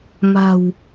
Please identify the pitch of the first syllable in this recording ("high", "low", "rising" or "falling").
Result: low